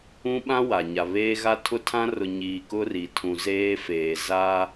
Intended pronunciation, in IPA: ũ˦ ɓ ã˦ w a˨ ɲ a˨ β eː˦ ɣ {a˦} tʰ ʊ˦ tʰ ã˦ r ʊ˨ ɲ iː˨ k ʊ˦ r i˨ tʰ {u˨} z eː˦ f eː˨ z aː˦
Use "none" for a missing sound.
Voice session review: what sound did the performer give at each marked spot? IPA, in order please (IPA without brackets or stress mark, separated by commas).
a˦, ũ˨